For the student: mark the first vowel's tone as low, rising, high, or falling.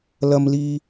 low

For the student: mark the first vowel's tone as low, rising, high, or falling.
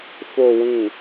low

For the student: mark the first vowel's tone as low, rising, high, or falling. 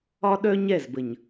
high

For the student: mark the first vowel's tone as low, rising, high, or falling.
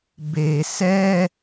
low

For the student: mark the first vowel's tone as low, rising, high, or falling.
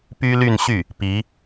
high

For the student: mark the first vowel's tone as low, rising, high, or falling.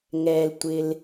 low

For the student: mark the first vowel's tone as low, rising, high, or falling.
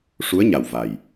rising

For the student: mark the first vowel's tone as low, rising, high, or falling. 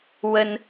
high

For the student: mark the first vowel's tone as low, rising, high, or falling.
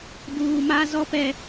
high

